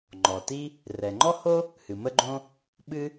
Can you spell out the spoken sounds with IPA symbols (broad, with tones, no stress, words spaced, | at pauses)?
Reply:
ŋ͡ǃɔ˩ti˥ | rɛ˩ŋ͡ǃɔ˥ho˥ | hɨ˩mə˥ɡ͡ǃõ˥ | ɓɨ˥